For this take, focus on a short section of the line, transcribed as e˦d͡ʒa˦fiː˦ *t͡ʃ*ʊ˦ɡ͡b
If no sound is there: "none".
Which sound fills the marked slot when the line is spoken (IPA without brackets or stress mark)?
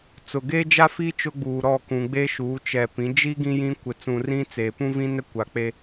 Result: t͡ʃ